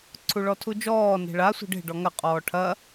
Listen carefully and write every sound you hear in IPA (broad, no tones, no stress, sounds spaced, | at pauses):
ǀʰ u ɭ ɔ tʰ u d͡ʒ ɔː n e̤ ɭ a sʷ e̤ ɖ e̤ ɖ ɔ ŋ ɐ qʼ ɔː ʈʰ ɐ